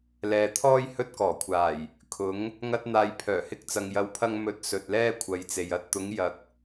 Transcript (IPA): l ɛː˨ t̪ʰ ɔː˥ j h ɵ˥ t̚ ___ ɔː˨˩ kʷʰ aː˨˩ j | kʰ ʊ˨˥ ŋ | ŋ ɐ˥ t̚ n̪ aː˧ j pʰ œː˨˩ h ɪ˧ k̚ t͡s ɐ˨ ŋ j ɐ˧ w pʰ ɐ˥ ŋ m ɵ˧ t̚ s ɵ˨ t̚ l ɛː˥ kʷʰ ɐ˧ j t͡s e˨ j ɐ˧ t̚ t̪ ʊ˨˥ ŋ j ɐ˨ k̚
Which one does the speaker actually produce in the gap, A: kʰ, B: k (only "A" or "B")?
B